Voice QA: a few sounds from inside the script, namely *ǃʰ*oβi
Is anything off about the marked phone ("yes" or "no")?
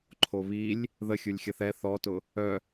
no